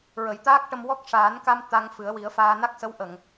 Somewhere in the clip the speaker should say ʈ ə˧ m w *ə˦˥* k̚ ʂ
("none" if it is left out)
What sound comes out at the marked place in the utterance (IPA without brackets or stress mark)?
ɔ˦˥